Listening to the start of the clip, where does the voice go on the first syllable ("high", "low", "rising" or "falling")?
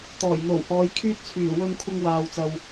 low